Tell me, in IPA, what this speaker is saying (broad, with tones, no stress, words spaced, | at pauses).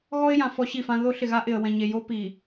ɣɔ˦ɪ̯jã˨ fɔ˦ɕi˦˨fã˦ ðo˦ɬɪ˨ɣa˦ʔɪ˨ə̯ wɛ̃˨ɲe˨jo˦pi˨